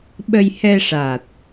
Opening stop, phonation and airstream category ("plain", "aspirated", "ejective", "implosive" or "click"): implosive